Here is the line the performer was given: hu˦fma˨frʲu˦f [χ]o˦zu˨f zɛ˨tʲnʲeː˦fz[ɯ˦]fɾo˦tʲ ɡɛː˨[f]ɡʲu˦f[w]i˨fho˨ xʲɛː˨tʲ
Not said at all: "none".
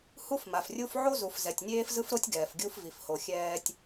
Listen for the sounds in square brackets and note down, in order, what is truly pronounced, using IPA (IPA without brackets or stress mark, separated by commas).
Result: ʕ, ɯ˦, f, v